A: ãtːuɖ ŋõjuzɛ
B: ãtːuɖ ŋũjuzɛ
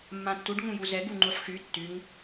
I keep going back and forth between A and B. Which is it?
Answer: B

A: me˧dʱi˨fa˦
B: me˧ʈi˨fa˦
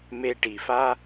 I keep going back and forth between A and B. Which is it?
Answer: B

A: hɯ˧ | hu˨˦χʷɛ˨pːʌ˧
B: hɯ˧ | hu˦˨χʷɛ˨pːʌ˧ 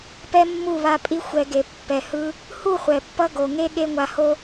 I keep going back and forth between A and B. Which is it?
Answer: B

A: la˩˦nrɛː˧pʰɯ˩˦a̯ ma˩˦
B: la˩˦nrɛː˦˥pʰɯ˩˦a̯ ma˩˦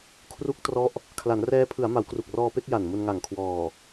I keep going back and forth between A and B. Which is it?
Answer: B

